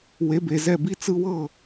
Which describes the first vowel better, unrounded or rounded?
unrounded